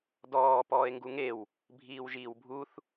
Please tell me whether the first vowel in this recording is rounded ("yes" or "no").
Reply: yes